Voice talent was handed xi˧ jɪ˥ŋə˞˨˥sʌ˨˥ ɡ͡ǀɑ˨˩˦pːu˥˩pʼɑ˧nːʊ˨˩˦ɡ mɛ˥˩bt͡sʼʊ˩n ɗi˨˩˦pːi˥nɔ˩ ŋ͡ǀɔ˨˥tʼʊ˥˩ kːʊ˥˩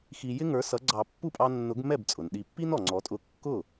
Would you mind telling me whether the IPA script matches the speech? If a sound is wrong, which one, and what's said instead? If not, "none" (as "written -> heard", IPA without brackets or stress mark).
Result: none